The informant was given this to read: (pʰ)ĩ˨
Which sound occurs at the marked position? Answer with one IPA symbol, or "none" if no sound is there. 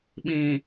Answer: ɓ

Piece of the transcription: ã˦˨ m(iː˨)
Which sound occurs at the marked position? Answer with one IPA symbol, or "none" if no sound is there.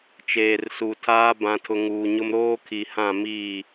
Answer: iː˦˨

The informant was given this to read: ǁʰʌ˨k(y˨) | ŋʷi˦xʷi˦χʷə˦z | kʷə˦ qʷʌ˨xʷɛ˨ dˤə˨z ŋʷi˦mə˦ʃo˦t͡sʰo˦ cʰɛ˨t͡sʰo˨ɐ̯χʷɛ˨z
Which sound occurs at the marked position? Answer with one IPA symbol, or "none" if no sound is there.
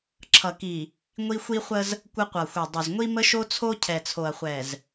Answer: i˨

